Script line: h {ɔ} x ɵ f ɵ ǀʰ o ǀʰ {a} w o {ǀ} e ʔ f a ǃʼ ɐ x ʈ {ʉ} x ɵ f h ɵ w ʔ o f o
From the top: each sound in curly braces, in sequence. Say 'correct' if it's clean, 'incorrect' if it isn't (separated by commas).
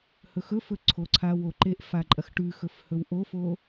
incorrect, correct, incorrect, correct